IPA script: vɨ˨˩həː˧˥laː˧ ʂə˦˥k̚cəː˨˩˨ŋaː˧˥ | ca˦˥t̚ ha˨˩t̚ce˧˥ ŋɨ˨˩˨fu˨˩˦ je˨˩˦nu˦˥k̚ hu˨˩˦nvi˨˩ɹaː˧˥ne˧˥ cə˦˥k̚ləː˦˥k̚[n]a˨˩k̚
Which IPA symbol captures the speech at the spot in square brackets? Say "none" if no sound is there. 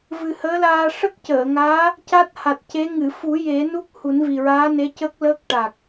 ʈ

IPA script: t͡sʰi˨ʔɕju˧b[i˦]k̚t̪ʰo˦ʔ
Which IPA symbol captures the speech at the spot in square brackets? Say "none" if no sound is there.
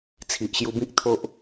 ĩ˦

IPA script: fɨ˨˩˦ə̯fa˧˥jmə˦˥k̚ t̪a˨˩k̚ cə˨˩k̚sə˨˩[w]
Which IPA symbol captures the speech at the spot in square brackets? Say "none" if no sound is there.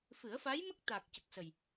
j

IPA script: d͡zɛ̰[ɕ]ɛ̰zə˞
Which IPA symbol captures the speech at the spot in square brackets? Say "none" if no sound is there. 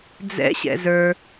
ɕ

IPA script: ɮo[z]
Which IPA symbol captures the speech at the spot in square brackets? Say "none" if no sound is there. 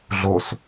s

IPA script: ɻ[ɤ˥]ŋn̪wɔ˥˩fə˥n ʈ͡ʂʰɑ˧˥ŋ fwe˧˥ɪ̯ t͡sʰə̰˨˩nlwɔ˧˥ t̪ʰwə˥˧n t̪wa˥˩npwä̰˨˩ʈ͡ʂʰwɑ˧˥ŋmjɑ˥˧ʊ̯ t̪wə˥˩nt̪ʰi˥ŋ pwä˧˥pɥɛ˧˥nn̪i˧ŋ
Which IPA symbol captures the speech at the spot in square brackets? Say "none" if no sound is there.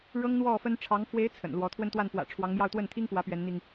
ɤ˥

